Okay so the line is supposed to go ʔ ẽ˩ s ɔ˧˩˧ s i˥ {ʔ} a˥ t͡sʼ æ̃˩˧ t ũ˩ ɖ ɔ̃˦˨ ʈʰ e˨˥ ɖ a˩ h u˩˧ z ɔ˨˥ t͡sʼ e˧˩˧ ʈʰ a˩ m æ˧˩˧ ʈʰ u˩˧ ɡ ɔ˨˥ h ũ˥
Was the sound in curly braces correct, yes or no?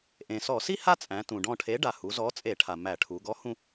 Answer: no